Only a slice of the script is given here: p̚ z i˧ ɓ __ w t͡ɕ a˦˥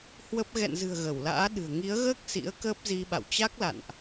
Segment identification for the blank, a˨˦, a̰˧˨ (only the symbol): a̰˧˨